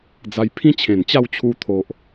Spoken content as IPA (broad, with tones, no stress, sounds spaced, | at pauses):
d͡z a˧ j pʰ ĩ˦ t͡ɕʰ ẽ˨˩ n t͡ɕ a˥˧ w t͡ɕʰ u˧ t̪ʰ o˨ ʔ